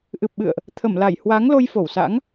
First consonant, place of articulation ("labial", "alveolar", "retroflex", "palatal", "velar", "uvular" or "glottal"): glottal